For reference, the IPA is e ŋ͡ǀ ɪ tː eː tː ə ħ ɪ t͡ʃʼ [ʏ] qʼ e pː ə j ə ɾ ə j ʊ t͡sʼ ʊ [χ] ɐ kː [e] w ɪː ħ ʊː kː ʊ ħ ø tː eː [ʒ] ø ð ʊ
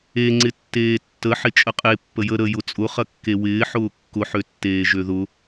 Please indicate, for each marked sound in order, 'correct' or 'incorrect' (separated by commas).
incorrect, correct, correct, correct